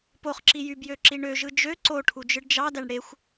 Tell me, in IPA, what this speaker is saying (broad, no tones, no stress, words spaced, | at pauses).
poχǁi jybjø ǁiɳøʒɯ d͡ʒø ǀoʈʰu d͡ʒɯɖd͡ʒɑdæɳ ɽexʷ